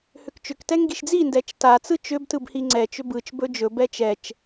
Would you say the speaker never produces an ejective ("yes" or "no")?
yes